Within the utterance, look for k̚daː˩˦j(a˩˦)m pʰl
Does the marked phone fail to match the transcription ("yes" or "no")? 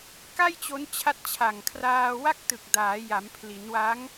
no